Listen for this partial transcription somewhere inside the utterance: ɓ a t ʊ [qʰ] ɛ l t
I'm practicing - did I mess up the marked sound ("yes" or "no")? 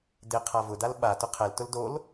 no